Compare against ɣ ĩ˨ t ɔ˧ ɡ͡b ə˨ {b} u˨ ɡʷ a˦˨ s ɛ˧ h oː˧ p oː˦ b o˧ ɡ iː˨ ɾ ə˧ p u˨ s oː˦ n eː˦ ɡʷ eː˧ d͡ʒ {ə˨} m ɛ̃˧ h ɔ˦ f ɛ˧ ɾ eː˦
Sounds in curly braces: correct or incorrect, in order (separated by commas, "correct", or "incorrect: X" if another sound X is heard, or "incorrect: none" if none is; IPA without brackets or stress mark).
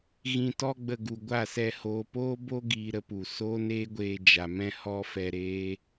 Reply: incorrect: ɡ, incorrect: a˨